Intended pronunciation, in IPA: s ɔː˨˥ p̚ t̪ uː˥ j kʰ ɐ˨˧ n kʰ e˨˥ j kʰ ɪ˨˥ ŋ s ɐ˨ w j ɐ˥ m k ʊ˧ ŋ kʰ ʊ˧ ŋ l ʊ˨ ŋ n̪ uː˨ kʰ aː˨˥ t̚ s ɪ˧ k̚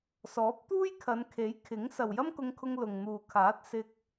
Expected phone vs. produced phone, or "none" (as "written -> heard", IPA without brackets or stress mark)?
none